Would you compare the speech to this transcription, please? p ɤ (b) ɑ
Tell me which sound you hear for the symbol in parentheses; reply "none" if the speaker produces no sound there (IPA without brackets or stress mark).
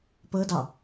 d